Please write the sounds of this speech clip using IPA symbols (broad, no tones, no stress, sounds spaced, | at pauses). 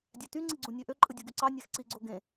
dʲ æ t y ŋ͡ǀ i ɡ͡ǀ ũ nʲ ø ʔ ø ǃʼ ɯ dʲ u ɡ y ǀ ɑ nʲ æ x ǀ i ɡ͡ǀ o ɡ ẽ